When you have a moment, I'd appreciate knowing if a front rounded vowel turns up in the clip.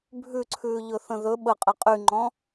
yes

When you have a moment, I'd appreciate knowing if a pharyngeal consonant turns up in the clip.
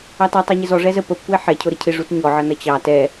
yes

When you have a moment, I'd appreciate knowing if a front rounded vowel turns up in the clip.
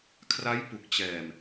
no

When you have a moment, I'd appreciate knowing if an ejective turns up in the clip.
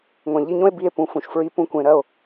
no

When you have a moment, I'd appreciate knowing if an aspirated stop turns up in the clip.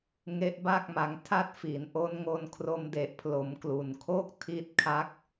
yes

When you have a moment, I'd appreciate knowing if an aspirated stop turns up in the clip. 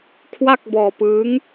yes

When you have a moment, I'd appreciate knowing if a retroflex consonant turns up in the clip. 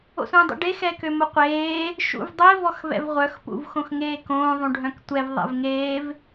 yes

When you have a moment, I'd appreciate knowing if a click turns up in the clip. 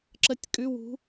yes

